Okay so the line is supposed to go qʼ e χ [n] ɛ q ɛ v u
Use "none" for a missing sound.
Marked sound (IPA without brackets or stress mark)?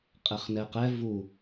n